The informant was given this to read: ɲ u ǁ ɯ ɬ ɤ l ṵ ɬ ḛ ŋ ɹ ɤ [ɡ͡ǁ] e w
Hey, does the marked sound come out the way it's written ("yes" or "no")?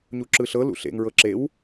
no